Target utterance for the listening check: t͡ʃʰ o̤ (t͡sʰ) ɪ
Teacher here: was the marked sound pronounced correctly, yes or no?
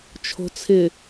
yes